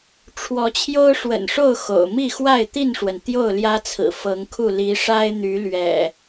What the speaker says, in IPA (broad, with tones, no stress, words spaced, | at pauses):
ʈ͡ʂʰwɔ˨˦t͡ɕʰjo˦ʊ̯ʂwə̰˨˩nʂo˥˨ʊ̯ xo̰˨˩ʊ̯ mi˥˨xwa˥˨ɪ̯t̪i˥˨nʂwə˩n t̪jo˥˨ʊ̯ljä˦t͡sʰɹ̩˨˩ fɤ˨˦ŋkʰu˥˨ li˨˦ʂa˦ɪ̯n̪y˨˦ lɥɛ̰˨˩